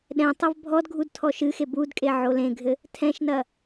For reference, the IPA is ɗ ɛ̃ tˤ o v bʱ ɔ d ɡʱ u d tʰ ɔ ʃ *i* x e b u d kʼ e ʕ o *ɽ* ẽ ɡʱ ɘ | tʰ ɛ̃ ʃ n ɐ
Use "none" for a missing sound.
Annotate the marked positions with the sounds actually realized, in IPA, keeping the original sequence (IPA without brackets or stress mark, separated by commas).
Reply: ɨ, l